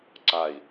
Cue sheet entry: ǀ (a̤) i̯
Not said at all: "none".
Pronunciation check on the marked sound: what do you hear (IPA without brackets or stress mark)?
a